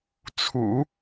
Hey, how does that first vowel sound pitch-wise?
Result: low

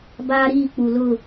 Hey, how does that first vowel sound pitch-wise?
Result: high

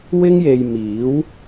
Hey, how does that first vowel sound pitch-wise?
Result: high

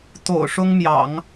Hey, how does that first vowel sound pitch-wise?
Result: low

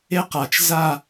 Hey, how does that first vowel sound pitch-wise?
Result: high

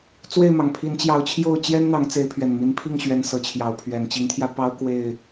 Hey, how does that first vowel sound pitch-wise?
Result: falling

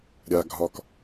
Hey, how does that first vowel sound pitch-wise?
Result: low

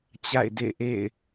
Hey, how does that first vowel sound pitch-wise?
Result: falling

